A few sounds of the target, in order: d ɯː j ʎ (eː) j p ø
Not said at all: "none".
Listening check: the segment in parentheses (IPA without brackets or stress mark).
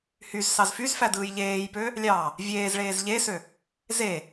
eː